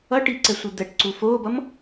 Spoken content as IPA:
ʌ ʈ i ǀ ɛ sʷ ɯ d̪ ɛ ʈ ǀ u f oː b ʌ m

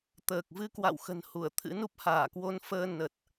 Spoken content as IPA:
t̪ əː˨˩ k̚ v ɨ˧ k w a̰˧˨ w x ə̤˨˩ n h u˧˩ ə̯ t̪ʰ ɨ̰˧˥ n u˦˥ p̚ h aː˧˩ k w o˧ n f əː˧ n ə˨˩ t̚

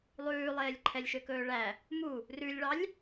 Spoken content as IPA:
lˠ ʉː lˠ eː lʲ ǃʰ ɛ lʲ ʃ ø k ɵː ɭ æ | m u | r ʉ lʲ ɭ ɑ lʲ

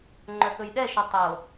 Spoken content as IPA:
ŋ͡ǃ œ k ɵ j ɗ ɛ ʃ ɵ tˤ o

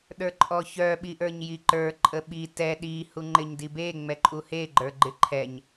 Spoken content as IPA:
ɗ ə˞ ǃʼ ɔ ç œ ɓ i ʔ ə˞ ɲ j i ǃ ə˞ ǃʼ ə ɓ i t ɛ ɗ i h u ŋ͡ǃ ɪ ɲ d i b e ŋ͡m ɛ ǃʼ u h e ɡ͡ǃ ə˞ ɡ͡ǃ ɪ ǃʰ ɛ ɲ

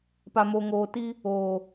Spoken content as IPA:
p a˨ m o˨ ŋ oː˨ t i˦ | oː˨

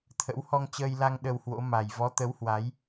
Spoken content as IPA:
t̪ʰ ə̰˧˥ w h ɔ˧ ŋ t͡ɕ əː˧ j l a˧ ŋ ɗ ə˧ w h w o̰˧˥ m a˨˩ j v ɔ˨˦ t̪ ə˨˦ w h w a˨˦ j

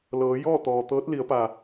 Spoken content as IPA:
l ɤː˩˧ j ɔː˥˨ t̪ ɔː˩ t̪ ɤː˧˥ t̚ l i˩˧ ə̯ p a˩

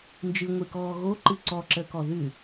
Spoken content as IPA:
n d͡ʒ ɨ ŋʷ ɨ k ɔː ɣ o ǃ ɨ ǀ ɔ ǁ ə k ɔ ð ʉ

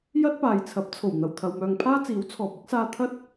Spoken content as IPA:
j ɐ˥ t̚ p aː˨ j t͡sʰ ɐ˨˥ p̚ t͡sʰ o˨˩ w n̪ ɐ˨˩ w t̪ʰ ɐ˨ w m œː˨ ŋ pʰ aː˥ t͡s iː˨˥ w t͡sʰ ɔː˨ p̚ ɪ˥ k̚ s aː˧ t̪ʰ ɐ˥ t̚

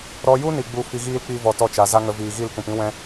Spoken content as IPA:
ɾ ɔ˧ j u˦ n i˨ ɡ͡b u˦ f i˧ ɣ iː˦ l k͡p i˦ v ɔ˧ t ɔ˦˨ t͡ʃ a˨ z a˦ ŋ ə˧ v iː˨ ɣ i˦˨ l k ũ˨ p ĩ˦ w ɛ̃˦

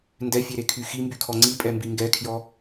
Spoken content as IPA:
n d ɛ fʲ e ɾ e kʰ y x i m b y kʰ ɔ ŋ͡ǀ i pʼ ɛ m b i ŋ ɡ ɛ kʰ j ɔ

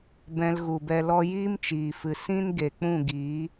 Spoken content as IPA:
b ɛ̃˧ l ɣ u˨ b ɛ˧ l ɔ˧ j iː˦ m t͡ʃ iː˨ f ɨ˨ s ĩ˦ n ɡ e˨ k͡p ũ˦˨ ɡ iː˨˦

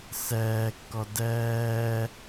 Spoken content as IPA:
s ɛː kː ɔ d ɛː

